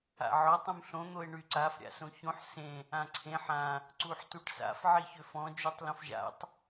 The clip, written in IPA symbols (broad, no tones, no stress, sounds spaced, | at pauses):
a̰ ʕ ɔ tˤ ũ m ɬ õ n̪ o e̯ ɳ y ǀ a f ɾʲ a̰ s õ ç õ ħ s ẽ | ã ǀʰ ẽ ħ ã | ǀ u ħ t u ʈ s a̰ f ʕ i ç ø f ɔ̃ d͡ʒ y tˤ l õ f ʒ a̰ tˤ